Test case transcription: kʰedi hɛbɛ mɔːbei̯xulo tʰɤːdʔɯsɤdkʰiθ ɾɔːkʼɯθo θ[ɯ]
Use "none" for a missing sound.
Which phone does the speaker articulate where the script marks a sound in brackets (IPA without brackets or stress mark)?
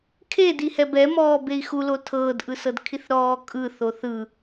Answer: ɯ